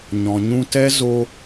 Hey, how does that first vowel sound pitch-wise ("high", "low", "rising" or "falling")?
low